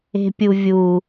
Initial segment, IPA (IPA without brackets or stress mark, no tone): e̤